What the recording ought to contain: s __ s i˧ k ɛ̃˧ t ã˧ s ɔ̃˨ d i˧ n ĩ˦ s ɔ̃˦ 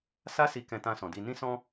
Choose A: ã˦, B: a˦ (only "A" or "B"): B